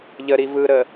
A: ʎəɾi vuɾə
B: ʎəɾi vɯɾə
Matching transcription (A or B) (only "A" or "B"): B